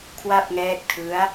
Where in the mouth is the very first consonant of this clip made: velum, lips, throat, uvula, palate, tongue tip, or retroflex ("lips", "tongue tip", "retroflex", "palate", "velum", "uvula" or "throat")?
velum